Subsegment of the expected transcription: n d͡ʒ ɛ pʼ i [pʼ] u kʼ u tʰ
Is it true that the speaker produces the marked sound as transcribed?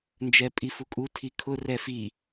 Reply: no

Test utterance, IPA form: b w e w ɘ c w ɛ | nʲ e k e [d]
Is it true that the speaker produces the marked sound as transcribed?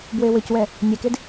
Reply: yes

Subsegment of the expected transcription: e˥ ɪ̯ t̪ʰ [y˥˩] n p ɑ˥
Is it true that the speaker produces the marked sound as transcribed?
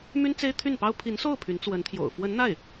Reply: yes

